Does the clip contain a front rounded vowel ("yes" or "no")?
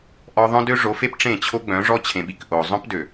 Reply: yes